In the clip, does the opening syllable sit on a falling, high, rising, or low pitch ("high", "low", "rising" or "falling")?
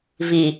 low